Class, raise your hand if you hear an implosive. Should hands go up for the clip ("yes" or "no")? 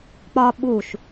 yes